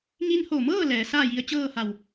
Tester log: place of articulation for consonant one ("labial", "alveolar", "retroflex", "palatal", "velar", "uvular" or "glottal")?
velar